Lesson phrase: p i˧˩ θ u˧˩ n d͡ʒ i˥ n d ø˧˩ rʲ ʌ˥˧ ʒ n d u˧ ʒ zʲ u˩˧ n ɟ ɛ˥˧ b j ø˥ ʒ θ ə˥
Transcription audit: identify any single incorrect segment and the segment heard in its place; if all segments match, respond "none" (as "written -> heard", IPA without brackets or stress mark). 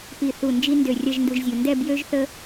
ɟ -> d